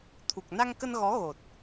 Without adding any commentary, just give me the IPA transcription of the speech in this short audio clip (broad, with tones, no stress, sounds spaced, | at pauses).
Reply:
t̪ʰ u˨˩ k̚ n a˧ ŋ k ə˧ n ɣ ɔ˨˦ ɣ o˨˩ t̚